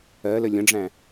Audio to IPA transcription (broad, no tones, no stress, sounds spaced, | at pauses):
ɜ l ə lʲ ə̃ ɖ͡ʐ æ̃